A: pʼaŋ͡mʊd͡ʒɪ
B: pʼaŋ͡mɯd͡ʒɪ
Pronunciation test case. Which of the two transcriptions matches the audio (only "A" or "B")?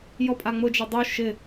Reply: A